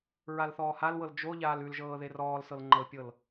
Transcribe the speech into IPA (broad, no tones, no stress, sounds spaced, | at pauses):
ɹ a l θ ɔː h a l w ɤ l d͡ʒ o ʎ aː l ʉ l ʒ ɤː ð e r ɔː l s ɤ l ŋ͡ǃ ɤ pʲ ɤ l